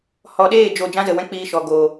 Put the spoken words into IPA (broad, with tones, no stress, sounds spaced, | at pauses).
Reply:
h ɔ˨ ɗ eː˦˨ d͡ʒ o˨ d͡ʒ ã˦ z ə˨ w ɛ̃˦ k͡p iː˧ ʃ ɔ˨ ɡ oː˨